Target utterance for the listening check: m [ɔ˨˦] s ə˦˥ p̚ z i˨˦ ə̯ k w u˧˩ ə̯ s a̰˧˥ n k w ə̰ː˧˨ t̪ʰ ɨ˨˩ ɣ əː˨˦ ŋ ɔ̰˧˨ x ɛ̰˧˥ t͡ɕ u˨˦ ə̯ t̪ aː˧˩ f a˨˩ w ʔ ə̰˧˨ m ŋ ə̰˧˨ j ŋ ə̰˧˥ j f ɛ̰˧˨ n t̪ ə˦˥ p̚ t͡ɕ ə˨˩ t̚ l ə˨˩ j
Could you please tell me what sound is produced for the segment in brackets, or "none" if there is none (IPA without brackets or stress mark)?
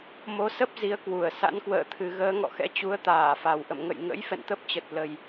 o˨˦